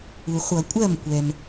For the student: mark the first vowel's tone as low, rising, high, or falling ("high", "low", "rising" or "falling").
low